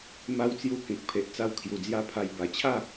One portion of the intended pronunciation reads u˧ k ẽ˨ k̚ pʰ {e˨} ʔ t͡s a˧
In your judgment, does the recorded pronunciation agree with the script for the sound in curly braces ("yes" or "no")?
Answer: yes